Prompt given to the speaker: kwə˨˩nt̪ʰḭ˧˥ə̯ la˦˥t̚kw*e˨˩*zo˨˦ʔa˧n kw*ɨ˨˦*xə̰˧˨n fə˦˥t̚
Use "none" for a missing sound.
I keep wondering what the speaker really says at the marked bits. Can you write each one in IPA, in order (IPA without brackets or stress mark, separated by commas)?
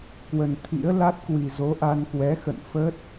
i˨˩, ɛ˨˦